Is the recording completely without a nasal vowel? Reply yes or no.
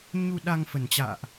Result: yes